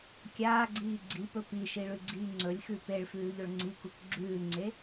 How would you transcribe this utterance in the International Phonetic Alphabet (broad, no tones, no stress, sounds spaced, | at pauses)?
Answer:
kʲ aː ɡ͡ǀ iː ɡ͡ǀ i p ɵ p i ʃ i ɭ ʉ ɡ͡ǀ iː ŋ͡ǀ ɵ lʲ x ʉ p e ɭ f ʉː ʎ ɵ ɭ ŋ͡ǀ i k u k ɡ͡ǁ ʉː ŋ͡ǀ e